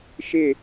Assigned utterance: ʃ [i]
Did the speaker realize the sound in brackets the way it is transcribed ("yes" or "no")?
no